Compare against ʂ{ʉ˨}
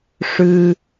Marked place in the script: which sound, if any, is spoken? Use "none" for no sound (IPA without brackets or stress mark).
ʉ˨